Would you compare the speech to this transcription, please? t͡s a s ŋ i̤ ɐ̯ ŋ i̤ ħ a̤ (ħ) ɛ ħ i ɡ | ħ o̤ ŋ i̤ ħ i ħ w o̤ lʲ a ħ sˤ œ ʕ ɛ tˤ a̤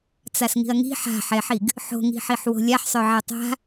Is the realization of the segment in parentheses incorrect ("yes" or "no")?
no